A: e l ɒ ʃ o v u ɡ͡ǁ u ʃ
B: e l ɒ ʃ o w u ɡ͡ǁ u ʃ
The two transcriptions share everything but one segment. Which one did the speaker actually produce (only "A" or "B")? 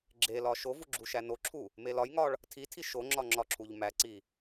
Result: A